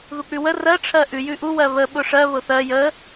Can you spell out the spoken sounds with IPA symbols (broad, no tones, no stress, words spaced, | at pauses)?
ðuk͡pʉwə rɜ ʈ͡ʂʰɜʔʉ jʉʔu wɜβə ɓʊʂɜ βʊθɜ jə